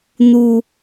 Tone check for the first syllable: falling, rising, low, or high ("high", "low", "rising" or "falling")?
high